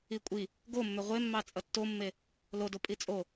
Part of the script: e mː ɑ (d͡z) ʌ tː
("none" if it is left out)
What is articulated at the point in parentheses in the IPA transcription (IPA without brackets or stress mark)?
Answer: t͡sʼ